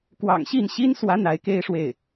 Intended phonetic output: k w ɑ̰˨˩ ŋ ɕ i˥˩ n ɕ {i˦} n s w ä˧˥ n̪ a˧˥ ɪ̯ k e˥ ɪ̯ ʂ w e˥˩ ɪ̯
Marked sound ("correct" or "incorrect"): incorrect